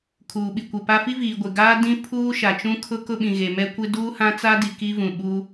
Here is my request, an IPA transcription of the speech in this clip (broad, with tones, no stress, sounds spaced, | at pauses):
kʰ uː˨ ɓ i˨ kʷ e˨ p a˦ f i˦ v iː˨ ɡʷ e˨ ɡ aː˦ d ĩ˦ pʰ uː˦ ʃ a˨ t͡ʃ ũ˦ kʰ ʊ˦ k ʊ˦ ɓ ĩ˨ ɣ e˨ m ɛ˦ kʷ ɪ˦ d uː˦ h ã˦ t͡s a˦ d i˨ k i˦ v ũ˨ ɓ u˦